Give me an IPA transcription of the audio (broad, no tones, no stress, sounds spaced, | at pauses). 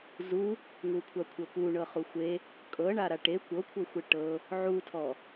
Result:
z u | ŋ u kʷʰ a kʷʰ ɤ p u ɳ ɤ χ u xʷ e | kʼ ɤ ɳ a ɾ a ʈ e kʷ ɤ kʷʰ ɤ xʷ e ʈ ɤ | ʕ u tʰ ɔ